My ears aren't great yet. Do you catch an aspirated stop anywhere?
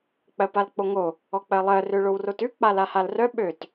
no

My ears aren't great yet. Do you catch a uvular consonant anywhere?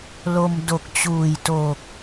no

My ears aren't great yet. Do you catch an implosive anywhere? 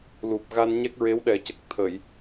yes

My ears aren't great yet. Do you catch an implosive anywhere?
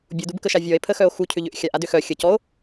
no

